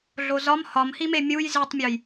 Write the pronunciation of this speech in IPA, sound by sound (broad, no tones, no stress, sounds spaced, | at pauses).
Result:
ɮ o z ɒ m h ɒ m h i m e mʲ u j z i tˤ mʲ o j